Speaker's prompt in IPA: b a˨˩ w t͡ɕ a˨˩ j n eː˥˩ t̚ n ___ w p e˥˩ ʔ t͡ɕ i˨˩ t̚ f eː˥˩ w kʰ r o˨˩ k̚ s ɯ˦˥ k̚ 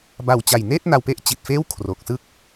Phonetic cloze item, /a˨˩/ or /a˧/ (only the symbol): a˧